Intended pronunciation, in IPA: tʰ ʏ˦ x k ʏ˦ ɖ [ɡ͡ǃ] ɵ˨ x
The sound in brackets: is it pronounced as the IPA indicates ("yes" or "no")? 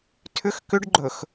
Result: yes